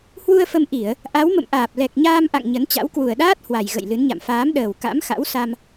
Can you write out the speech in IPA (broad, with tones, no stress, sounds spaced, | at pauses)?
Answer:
h w u˧ ə̯ f ə˧ m ʔ i˧˩˨ ə̯ | ʔ a˨˦ w m ə̰˧˨ m ʔ aː˨˩ p̚ l ɛ˨˩ k̚ ɲ aː˧ m ʔ a̰˧˨ ŋ ɲ ə˨˦ n t͡ɕ a̰˧˥ w k w u˨˩ ə̯ ɗ aː˦˥ t̚ h w a˨˩ j ɣ ə̰˧˨ j l ɨ˨˦ n ɲ a̰˧˨ m f aː˨˦ m ɗ əː˨˩ w k a̰˧˥ m x a̰˧˥ w s a˧ m